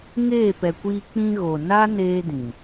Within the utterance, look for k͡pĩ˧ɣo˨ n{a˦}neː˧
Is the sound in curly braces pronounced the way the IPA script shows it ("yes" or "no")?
yes